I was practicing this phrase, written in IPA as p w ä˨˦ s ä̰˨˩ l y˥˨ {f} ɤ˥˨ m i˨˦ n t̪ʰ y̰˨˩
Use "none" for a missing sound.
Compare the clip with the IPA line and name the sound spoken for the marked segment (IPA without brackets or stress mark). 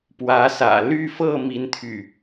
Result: f